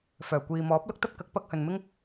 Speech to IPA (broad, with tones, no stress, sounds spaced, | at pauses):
f œː˨˩ kʷ iː˨ m ɔː˨˥ p̚ l ʊ˥ k̚ t̪ ɐ˥ p̚ k ɐ˨˥ k̚ p ɐ˧ k̚ h ɵ˨ n m ɪ˥ ŋ